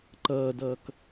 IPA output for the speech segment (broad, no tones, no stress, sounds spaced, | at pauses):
ǃ ʌː d ʌː k